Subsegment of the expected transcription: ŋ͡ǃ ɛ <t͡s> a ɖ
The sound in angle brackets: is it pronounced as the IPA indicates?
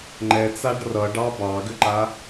yes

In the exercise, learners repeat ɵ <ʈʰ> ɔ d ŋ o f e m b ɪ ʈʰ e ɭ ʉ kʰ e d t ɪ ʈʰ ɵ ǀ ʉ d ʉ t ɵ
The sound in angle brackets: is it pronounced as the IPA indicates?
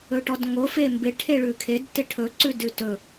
no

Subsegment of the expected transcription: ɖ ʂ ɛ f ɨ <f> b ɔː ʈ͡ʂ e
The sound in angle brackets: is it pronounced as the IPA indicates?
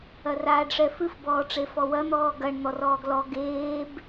yes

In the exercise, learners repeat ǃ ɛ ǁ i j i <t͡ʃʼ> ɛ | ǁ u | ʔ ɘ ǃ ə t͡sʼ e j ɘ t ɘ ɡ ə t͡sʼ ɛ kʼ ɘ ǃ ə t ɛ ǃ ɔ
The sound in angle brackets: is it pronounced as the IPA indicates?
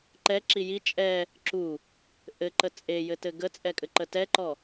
yes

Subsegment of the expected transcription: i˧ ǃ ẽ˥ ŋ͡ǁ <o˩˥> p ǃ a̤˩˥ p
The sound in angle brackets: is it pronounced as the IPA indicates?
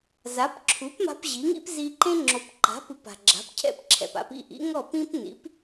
yes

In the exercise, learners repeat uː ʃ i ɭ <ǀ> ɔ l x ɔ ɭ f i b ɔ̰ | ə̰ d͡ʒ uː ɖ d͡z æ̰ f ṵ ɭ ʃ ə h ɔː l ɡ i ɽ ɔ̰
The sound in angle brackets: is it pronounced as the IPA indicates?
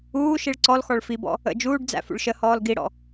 yes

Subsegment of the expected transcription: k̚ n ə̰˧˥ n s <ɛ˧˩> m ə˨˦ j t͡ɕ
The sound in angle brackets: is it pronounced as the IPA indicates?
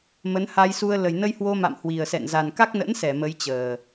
yes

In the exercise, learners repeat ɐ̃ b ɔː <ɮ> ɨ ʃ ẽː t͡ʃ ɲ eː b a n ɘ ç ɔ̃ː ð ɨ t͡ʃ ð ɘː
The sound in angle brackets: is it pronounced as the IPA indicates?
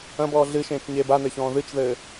yes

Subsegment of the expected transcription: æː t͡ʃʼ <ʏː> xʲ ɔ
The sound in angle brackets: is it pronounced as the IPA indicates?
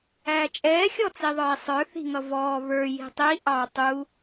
no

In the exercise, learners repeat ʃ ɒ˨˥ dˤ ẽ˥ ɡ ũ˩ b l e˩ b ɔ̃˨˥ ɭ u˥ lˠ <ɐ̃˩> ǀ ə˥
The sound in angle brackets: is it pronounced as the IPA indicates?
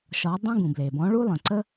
no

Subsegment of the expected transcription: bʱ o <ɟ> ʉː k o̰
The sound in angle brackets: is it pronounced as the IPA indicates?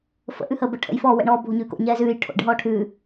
no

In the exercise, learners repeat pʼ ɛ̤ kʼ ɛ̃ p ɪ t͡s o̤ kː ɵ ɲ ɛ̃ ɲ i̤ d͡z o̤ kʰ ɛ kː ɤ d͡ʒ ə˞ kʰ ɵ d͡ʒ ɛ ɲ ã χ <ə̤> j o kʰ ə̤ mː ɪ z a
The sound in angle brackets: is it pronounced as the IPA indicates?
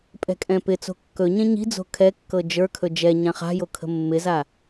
no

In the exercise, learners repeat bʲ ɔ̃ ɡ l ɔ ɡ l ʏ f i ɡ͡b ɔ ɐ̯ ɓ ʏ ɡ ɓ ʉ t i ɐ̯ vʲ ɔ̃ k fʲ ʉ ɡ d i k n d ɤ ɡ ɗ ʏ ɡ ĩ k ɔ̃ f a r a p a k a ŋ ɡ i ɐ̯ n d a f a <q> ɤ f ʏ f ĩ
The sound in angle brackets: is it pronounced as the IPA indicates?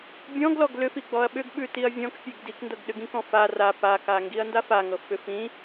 no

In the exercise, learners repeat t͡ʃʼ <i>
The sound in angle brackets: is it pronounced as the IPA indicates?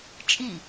yes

